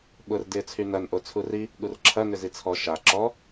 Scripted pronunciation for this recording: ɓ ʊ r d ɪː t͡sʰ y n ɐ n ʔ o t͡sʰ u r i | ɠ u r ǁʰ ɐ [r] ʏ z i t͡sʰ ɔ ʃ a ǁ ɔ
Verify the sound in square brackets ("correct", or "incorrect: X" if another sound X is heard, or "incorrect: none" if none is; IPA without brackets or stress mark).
incorrect: n